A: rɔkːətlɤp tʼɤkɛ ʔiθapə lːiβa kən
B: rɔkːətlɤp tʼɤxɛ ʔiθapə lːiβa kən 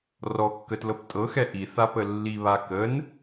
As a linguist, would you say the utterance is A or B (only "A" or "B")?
B